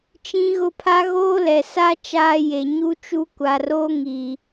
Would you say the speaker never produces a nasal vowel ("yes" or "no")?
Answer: no